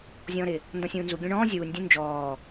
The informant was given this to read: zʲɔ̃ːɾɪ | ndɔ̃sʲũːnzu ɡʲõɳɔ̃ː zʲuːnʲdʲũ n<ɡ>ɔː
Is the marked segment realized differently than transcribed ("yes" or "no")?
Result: yes